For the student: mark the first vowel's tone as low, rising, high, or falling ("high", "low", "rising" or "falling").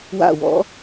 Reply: falling